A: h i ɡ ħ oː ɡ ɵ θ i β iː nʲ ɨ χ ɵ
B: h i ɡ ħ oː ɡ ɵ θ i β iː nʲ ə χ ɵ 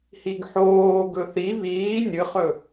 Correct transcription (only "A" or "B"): A